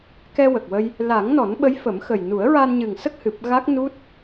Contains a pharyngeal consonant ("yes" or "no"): no